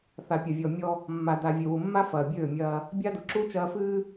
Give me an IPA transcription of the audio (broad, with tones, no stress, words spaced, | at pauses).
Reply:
θa˨pʲɐ˨vʲɔ˨mʲɔ˦ | mːa˨da˨ vʲø˨wu˨mːa˦ fɐː˨bʲøː˦˨mʲɐː˦ | bʲa˦dʊ˨ǁu˦ t͡ʃɐː˦fɨː˦